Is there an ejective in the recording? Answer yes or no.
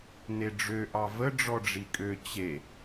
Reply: yes